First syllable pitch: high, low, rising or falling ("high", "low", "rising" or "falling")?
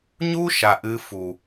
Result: high